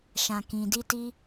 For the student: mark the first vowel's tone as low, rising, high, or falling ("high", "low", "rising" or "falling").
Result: low